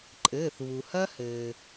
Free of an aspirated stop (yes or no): yes